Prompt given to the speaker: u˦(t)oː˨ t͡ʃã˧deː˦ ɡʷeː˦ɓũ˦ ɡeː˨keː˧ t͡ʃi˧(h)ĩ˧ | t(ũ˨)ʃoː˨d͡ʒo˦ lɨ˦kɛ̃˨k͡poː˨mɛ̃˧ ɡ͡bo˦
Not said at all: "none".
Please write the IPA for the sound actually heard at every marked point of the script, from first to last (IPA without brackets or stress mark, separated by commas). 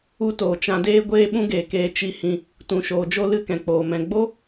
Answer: t, h, ũ˨